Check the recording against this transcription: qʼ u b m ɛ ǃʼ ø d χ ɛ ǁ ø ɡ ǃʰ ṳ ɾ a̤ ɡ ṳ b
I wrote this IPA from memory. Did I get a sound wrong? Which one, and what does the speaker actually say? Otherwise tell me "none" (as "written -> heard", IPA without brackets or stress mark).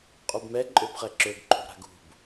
d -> b